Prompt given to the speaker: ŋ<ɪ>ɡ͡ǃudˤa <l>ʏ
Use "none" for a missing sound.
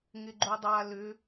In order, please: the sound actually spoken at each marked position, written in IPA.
ɪ, l

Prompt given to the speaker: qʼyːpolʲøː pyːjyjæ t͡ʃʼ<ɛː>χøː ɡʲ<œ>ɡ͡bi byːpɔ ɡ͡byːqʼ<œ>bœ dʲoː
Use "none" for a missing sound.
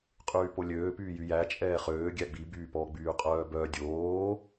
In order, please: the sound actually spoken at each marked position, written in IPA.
ɛː, æ, œː

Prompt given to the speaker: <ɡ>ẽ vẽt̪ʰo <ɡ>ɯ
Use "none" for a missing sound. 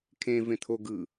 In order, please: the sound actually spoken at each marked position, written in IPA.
kʰ, ɡ

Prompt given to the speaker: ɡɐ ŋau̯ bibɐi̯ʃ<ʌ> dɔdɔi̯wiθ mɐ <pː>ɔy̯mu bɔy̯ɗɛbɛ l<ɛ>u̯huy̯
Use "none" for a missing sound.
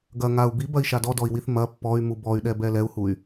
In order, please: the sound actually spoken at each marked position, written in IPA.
a, pː, ɛ

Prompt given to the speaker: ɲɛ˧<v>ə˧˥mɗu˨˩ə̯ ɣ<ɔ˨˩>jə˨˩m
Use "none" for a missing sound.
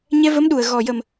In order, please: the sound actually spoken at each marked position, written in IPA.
v, ɔ˨˩

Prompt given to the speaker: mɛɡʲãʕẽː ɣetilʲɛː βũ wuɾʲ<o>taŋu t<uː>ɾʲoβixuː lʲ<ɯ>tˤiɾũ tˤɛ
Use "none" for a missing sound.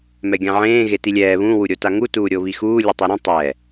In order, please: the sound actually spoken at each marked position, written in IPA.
o, uː, ɯ

